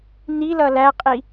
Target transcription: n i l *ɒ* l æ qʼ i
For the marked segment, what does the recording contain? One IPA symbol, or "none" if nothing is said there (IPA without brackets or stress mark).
ʌ